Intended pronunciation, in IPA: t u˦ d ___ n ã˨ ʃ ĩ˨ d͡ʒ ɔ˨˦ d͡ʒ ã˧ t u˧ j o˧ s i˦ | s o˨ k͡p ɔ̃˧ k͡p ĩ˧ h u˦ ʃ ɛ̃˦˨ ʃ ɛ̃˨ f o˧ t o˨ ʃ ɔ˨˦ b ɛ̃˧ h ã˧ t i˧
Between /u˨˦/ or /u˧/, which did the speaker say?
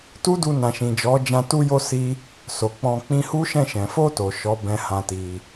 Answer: u˧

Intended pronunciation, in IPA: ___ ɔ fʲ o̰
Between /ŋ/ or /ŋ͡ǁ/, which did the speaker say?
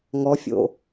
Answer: ŋ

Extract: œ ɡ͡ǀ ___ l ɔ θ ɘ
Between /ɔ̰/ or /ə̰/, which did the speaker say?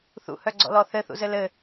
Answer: ɔ̰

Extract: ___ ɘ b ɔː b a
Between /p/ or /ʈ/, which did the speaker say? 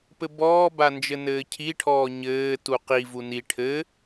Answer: p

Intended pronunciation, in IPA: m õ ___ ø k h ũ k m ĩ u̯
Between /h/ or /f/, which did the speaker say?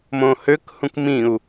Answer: h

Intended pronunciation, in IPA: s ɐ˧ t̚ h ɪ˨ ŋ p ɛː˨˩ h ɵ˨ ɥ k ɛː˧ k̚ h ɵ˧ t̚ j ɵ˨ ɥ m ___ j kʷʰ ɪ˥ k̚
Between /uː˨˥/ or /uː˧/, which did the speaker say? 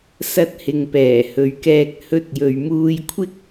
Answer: uː˧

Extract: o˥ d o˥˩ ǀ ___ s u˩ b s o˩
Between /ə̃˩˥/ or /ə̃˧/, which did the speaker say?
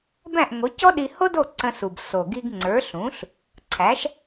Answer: ə̃˧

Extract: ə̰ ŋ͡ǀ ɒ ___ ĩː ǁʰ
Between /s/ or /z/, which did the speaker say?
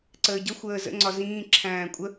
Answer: z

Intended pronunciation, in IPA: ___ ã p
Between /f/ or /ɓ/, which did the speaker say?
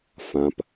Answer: f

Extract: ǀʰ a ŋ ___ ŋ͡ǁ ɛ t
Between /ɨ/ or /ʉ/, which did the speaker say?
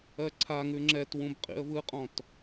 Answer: ʉ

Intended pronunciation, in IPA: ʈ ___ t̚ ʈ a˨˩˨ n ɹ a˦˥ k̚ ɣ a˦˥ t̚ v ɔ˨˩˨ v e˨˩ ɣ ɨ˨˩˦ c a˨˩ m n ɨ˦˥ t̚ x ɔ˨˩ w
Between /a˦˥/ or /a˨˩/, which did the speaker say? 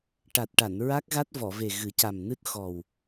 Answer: a˨˩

